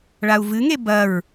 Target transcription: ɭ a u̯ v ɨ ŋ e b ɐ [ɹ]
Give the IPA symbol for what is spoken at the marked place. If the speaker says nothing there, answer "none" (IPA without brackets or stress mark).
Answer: ɹ